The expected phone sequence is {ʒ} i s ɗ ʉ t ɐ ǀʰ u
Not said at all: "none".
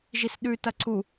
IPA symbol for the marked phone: ʒ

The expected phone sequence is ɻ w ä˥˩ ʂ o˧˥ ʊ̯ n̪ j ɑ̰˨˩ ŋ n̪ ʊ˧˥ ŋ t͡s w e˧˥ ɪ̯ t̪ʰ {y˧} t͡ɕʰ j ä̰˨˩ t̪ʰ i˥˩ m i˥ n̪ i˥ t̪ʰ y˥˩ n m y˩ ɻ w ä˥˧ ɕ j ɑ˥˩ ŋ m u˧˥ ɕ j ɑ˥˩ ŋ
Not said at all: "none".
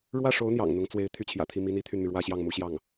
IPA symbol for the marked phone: y˥˩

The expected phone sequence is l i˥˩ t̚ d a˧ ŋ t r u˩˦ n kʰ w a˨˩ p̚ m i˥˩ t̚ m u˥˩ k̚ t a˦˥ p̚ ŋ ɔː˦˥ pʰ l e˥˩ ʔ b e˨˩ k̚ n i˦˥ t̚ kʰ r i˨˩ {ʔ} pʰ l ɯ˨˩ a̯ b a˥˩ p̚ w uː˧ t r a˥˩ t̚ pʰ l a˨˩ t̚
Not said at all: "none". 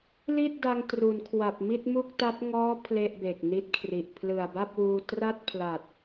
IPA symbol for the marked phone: ʔ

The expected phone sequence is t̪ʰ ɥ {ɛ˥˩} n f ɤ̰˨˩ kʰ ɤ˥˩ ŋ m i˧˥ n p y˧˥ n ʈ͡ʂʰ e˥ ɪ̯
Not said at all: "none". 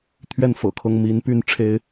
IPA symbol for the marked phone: ɛ˥˩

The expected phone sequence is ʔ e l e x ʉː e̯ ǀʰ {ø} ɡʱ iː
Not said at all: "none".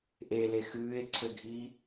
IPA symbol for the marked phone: ø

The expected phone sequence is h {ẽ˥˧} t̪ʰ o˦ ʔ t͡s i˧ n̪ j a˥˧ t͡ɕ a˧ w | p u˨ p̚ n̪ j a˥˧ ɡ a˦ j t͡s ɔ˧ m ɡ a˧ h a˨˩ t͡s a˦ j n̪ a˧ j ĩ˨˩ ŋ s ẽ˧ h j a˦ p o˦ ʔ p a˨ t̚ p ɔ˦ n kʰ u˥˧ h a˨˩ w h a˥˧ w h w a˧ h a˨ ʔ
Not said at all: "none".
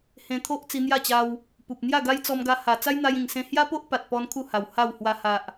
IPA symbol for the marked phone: ẽ˧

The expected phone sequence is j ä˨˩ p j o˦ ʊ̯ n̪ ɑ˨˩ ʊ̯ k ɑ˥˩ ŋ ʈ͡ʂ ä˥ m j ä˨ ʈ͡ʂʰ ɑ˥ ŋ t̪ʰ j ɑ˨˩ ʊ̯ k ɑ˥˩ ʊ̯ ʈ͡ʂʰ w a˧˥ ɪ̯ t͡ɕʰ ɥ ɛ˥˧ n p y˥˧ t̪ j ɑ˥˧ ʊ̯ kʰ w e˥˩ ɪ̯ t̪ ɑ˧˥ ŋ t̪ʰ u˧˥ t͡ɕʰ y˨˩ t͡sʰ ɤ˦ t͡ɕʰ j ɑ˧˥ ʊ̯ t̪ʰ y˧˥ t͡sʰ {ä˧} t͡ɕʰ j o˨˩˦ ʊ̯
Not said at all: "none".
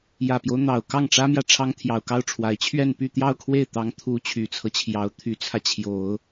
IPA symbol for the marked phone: ä˧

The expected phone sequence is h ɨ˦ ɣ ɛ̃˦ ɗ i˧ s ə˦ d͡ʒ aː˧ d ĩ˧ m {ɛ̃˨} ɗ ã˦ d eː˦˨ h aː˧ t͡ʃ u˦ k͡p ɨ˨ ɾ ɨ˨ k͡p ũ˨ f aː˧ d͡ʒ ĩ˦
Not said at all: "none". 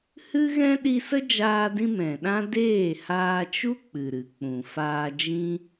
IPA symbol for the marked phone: ɛ̃˨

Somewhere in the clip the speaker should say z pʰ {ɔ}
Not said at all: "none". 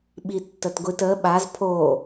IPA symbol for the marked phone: o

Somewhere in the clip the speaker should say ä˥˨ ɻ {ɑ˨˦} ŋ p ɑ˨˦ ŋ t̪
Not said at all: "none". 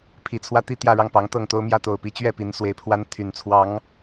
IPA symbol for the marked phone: ɑ˥˨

